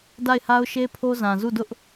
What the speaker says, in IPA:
d a˦˨ ɪ̯ h a˦ ʊ̯ ʃ e˦ pʰ o˦ z ã˨ z u˦˨ d ʊ˦ ʔ

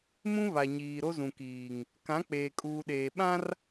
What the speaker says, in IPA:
m ũ˦ β a˨ ɲ iː˨ ɾ o˦ z ũ˨ k iː˨ ŋ | k ã˨˦ k͡p eː˨ kʼ uː˨ ɗ eː˨ ɓ ã˦ r

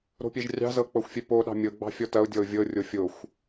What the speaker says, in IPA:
ɾ o̤ pʲ ɛ ʒ rʲ ɑ̤ z ɤ k͡p ɤ xʷ fʲ ɛ p o ɗ ɑ̤ mʲ ɤ ɡ͡b ɑ̤ fʲ ɔ t ɐ ʊ̯ dʲ ɔ ʊ̯ vʲ ɤ rʲ o fʲ o xʷ

